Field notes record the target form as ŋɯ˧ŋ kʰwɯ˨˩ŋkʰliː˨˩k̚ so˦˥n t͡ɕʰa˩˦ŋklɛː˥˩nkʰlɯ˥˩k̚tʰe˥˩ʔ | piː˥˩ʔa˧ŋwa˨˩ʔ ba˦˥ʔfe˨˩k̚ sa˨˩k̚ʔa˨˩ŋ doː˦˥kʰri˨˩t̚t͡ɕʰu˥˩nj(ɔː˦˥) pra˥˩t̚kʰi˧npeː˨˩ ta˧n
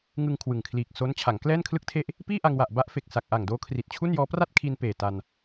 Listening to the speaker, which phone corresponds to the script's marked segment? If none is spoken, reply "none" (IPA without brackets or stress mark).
ɔː˦˥